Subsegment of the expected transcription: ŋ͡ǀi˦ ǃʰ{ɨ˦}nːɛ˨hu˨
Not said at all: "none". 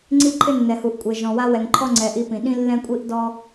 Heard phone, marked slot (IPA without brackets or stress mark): ɪ˦